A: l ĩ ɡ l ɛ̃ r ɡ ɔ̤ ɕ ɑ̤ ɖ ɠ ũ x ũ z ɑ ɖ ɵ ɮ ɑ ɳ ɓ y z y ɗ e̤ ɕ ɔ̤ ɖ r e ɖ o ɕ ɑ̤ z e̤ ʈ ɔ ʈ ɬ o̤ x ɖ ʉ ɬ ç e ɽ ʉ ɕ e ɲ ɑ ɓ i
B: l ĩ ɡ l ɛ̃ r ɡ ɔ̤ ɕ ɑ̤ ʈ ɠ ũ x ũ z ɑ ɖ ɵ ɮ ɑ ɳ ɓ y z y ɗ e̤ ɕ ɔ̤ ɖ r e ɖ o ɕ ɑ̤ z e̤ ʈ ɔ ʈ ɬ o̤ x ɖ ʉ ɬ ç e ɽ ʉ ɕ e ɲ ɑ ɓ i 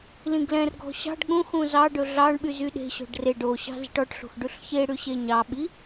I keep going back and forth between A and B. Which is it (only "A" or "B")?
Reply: A